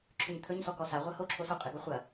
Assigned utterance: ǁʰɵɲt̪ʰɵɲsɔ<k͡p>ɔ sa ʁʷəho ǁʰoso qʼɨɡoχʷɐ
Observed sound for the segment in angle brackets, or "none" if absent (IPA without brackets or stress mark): k